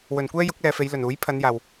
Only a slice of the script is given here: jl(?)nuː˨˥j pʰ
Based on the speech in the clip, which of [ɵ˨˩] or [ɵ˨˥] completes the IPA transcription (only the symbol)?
ɵ˨˩